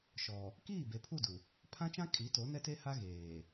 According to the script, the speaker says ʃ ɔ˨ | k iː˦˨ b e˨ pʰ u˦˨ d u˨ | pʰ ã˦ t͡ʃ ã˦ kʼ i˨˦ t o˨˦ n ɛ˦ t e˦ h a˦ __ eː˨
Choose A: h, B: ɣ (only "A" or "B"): B